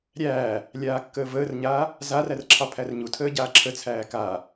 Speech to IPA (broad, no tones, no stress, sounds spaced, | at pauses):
ɾʲ æː | lʲ aː kː əː v əː r ɲ aː | z a r æ r ǁʰ ɑ pʰ æ r ɲ u tʰ əː ɟ aː ǁʰ ə t͡sʰ æː k a